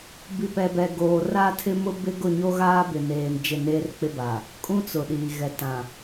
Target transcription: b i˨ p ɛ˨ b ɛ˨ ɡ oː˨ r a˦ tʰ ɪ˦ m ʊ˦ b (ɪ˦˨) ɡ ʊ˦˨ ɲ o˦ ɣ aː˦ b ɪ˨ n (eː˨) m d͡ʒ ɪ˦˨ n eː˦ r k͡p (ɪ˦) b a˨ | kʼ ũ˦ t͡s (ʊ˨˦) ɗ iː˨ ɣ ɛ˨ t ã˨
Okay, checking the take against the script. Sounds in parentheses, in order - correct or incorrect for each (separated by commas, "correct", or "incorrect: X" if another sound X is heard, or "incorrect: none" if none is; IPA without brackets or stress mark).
incorrect: ɪ˦, correct, correct, incorrect: ʊ˨